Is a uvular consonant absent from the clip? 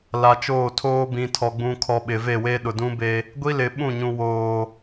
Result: yes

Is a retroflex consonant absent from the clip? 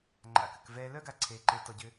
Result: yes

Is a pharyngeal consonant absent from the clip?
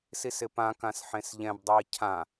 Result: no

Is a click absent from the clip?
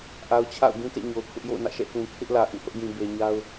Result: yes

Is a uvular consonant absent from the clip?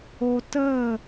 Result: yes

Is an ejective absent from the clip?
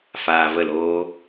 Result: yes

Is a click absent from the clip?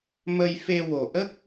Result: yes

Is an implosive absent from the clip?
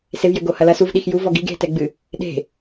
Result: no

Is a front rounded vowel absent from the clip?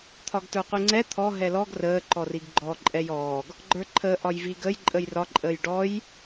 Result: yes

